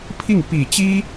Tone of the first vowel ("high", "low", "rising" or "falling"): falling